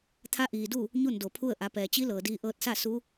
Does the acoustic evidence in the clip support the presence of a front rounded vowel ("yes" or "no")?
no